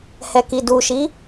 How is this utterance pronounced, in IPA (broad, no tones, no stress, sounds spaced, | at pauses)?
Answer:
h ɛ k i d u ʃ i